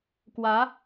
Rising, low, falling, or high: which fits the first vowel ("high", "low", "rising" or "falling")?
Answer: rising